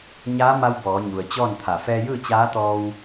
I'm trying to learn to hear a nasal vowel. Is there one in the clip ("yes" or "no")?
no